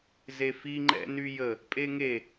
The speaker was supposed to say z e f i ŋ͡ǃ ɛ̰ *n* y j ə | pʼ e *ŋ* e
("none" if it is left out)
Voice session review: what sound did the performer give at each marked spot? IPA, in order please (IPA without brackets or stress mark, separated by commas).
n, ŋ